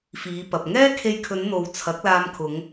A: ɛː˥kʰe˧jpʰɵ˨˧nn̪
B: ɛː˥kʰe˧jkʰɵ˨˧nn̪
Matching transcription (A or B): B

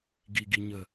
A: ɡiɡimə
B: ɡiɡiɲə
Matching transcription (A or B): B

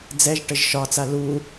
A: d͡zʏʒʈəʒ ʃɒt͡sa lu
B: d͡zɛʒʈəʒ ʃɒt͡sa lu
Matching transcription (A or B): B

